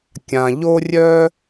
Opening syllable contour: low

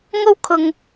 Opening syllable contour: high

